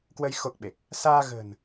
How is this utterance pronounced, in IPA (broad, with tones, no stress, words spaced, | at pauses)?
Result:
kwə˧j xo˦˥k̚ɓe˨˩k̚ | saː˧ɣə̤ː˨˩n